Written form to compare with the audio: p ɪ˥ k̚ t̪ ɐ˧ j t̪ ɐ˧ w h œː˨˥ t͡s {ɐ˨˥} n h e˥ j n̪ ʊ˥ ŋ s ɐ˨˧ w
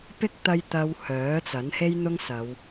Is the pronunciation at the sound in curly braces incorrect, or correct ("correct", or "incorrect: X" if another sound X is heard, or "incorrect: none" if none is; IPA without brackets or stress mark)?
correct